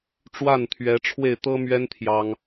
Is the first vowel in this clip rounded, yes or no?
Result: no